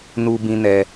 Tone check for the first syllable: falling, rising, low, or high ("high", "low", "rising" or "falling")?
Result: high